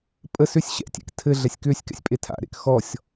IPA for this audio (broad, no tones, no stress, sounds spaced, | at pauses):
pʼ ə s ʏ sʲ ɕ ɛ̰ tʲ ḛ k tʰ ɘ ɮ ɛ sʲ k ʏː sʲ k ɛ̰ sʲ pʼ e tʰ a̰ ɾ ḛ k x ɔ sʲ